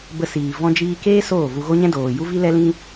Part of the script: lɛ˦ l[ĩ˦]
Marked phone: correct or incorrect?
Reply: correct